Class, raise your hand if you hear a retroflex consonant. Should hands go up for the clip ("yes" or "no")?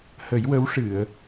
yes